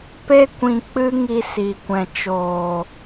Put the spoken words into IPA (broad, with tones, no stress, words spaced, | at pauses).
pe˦kʷĩ˧ k͡pɨ˦ŋi˧si˨ kʷɛ̃˨t͡ʃoː˨